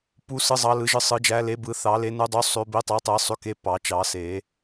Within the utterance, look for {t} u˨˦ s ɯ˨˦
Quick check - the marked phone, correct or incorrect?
incorrect